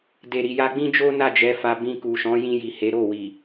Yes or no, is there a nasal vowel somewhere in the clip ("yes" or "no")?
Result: yes